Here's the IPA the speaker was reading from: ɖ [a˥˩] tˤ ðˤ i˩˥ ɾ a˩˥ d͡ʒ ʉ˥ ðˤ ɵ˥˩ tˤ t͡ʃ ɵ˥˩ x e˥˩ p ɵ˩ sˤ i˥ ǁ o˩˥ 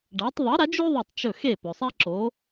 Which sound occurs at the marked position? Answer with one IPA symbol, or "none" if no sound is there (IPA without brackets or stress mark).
a˩˥